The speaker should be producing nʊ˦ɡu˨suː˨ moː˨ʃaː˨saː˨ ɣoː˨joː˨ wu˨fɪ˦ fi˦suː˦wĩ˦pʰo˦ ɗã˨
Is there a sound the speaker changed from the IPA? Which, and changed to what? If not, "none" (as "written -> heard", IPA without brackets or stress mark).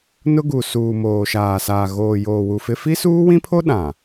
none